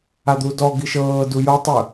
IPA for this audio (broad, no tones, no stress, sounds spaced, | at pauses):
a d̪ u d ɔ ɡ i ʃ ɤː d u j o tˤ ɯ